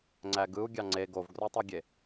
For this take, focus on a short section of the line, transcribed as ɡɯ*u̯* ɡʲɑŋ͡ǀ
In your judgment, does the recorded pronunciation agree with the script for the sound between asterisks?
yes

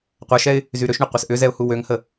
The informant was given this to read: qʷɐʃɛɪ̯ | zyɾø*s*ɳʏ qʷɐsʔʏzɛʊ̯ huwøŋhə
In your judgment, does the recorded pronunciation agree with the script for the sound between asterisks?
no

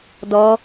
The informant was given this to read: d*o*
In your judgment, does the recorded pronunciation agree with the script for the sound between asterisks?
no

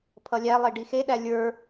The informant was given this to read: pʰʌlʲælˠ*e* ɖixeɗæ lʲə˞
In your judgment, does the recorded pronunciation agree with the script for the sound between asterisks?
yes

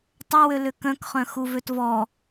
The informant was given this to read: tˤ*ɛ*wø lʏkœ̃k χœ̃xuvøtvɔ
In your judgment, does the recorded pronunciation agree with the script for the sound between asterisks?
no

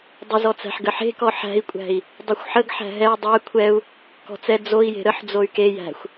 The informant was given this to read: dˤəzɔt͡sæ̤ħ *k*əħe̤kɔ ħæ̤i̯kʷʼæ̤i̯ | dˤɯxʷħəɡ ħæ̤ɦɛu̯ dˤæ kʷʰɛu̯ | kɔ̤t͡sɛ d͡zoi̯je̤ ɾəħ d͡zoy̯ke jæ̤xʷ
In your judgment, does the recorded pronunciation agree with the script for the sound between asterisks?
no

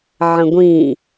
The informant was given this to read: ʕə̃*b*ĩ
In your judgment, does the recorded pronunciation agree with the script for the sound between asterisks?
no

